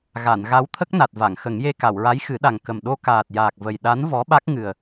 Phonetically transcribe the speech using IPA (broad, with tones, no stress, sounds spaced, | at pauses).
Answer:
ɣ a˨˩˨ n ɣ a˧˥ w t̪ʰ ə˦˥ k̚ n a˨˩ t̚ v a˨˩˨ ŋ x ə˨˩˦ ŋ j e˧ k a˨˩˨ w ɹ a˧˥ j x ɨ˨˩˦ ɗ a˨˩ ŋ k ə˨˩ m ɗ o˧ k aː˨˩ t̚ j aː˨˩ k̚ v ə˨˩ j ɗ a˧˥ n v ɔ˧˥ ɓ a˦˥ k̚ ŋ ɨ˨˩ ə̯